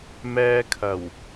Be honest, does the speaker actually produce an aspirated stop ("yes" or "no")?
yes